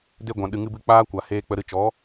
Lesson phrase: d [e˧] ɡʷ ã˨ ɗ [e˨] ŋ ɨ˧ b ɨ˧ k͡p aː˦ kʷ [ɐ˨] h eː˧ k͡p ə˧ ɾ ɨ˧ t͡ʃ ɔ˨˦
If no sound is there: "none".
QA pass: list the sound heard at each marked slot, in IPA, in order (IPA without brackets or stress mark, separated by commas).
e˧, ɨ˨, a˨